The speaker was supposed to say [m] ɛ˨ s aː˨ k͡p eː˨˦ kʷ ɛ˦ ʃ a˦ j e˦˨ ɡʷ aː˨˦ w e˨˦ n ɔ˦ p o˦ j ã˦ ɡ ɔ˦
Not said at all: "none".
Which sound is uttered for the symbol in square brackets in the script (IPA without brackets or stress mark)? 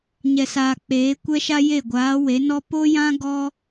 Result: ɲ